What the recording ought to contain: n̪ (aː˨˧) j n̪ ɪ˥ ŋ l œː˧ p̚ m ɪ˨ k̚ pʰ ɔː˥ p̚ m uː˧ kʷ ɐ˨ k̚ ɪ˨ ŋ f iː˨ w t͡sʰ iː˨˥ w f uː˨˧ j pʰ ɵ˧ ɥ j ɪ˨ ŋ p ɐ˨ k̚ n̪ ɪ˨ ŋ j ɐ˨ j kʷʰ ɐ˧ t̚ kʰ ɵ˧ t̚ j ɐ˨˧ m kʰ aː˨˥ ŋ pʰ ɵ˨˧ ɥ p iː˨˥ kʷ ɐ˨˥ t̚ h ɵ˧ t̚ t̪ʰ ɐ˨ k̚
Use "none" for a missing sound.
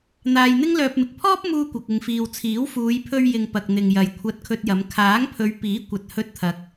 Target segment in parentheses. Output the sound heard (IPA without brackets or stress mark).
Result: aː˨